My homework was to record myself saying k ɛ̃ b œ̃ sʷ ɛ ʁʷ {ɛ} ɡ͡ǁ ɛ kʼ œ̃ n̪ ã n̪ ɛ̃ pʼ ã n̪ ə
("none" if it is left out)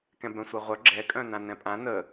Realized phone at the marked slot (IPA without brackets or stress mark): œ